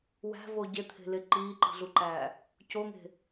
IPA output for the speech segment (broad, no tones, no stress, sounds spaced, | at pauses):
w æ̤ v o ɟ e t̪ʰ e̤ l e ǃ iː ǃ i̤ ɮ u ǃ æː | c o ŋ e̤